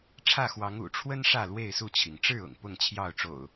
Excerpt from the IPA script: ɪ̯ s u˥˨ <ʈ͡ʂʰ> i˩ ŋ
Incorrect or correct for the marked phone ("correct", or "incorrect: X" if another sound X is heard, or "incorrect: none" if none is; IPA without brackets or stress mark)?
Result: incorrect: t͡ɕʰ